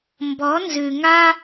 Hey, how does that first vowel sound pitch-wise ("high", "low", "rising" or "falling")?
rising